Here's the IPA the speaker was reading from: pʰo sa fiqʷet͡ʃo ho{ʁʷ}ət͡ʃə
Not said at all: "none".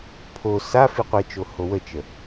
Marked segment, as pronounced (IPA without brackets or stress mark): w